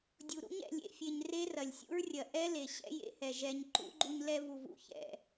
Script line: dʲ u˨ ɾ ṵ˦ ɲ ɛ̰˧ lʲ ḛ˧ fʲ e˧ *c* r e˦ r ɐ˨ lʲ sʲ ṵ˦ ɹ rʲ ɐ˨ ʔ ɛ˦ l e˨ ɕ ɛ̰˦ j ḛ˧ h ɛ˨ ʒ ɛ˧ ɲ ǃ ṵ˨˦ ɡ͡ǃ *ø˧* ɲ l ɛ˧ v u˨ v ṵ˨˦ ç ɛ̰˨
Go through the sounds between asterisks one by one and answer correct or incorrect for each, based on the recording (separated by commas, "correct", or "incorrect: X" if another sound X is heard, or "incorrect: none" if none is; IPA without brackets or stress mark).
incorrect: ɲ, incorrect: u˧